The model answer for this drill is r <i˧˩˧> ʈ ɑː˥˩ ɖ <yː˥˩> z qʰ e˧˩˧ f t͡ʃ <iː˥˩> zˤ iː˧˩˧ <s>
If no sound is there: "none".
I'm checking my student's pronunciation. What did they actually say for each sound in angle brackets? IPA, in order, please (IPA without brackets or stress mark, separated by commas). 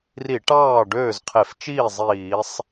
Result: i˧˩˧, øː˥˩, iː˥˩, sˤ